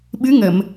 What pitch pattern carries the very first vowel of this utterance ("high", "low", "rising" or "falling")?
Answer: rising